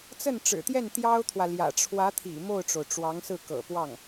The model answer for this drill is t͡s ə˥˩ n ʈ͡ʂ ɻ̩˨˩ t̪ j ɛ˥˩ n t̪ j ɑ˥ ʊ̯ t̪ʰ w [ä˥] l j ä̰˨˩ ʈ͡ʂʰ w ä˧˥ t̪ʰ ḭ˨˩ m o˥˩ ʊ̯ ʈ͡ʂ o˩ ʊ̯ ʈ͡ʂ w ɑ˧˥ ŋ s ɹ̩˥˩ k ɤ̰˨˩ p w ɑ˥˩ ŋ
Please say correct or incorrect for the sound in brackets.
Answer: incorrect: ä˨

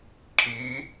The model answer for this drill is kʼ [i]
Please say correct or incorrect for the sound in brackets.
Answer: correct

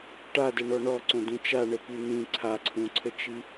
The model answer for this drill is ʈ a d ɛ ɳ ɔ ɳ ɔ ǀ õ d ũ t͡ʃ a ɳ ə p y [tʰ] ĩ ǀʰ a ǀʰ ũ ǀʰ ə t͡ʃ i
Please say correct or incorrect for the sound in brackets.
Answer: incorrect: n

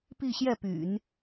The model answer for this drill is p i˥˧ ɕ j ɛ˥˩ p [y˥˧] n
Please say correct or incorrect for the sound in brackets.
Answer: incorrect: y̰˨˩˦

